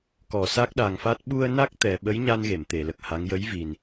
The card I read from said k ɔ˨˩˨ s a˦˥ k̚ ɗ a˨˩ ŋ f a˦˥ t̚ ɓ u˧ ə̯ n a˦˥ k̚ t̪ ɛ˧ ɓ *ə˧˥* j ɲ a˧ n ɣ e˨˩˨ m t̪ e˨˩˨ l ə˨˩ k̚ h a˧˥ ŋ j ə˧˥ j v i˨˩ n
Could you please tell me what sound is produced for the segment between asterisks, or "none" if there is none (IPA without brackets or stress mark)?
ə˧˥